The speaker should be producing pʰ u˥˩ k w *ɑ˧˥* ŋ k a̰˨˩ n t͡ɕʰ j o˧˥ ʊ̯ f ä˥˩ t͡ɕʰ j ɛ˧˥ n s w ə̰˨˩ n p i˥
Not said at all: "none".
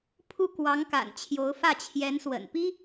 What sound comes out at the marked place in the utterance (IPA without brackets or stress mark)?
ɑ˧˥